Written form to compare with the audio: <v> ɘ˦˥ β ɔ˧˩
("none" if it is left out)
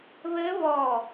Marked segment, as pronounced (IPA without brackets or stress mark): β